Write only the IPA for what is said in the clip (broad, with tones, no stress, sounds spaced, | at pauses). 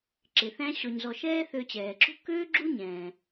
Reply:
ǁ ɪ˨ θ æ̃˦ ɕ ɔ˧ ɲ z ɔ˧ ʃ ɛː˦ θ ø˧ t͡ɕ ɛː˨ ǁ ṳ˦ k øː˦ ɡ͡ǁ u˦ ɲ ɛ̃ː˧